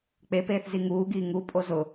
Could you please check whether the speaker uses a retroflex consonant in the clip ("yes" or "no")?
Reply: no